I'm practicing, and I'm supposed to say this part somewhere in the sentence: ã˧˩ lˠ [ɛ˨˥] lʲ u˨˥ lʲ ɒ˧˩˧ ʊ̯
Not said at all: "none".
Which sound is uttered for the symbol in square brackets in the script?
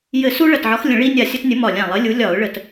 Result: ɘ˨˥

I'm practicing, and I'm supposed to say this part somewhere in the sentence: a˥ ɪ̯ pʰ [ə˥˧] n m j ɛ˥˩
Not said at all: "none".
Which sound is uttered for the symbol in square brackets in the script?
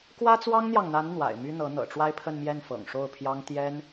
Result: ə˥˧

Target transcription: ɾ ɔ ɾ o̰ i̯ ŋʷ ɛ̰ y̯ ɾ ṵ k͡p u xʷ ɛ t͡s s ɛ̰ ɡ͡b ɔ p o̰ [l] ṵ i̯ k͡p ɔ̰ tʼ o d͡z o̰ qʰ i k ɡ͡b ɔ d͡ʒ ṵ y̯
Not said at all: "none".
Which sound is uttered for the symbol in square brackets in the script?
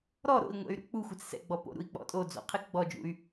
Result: ɾ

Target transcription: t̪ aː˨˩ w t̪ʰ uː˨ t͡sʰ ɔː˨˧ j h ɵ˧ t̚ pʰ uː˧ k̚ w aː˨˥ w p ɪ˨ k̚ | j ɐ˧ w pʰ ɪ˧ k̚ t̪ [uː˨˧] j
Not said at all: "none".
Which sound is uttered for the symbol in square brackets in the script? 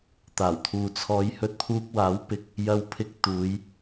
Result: uː˨˧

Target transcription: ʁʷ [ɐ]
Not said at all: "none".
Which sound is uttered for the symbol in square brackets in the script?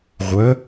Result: ɐ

